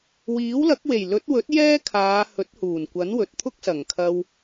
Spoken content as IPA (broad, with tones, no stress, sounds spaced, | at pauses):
w iː˨˥ w l ɐ˨˥ k̚ w e˨˩ j l ɵ˨˥ t̚ w ɵ˨˥ t̚ j ɛː˥ kʰ aː˨˧ h ɵ˨˥ t̚ h uː˨˩ n kʷ ɐ˨˥ n w ɵ˨ t̚ t̪ʰ ʊ˥ k̚ s ɐ˨˩ ŋ kʰ ɐ˧ w